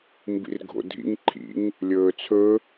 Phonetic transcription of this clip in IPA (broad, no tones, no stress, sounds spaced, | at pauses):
m b ḭ r ɡʱ o̰ dʱ ḭ ŋ ǃʰ ḭ ŋ | lʲ ɵː t͡sʰ ɵ